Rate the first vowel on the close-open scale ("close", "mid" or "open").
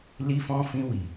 close